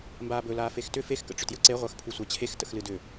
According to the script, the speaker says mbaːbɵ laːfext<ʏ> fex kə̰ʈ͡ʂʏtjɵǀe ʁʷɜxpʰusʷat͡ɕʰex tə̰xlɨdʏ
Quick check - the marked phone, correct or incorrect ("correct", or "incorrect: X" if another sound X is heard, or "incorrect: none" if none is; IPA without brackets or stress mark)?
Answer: correct